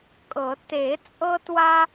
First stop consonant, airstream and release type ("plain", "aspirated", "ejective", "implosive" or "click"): ejective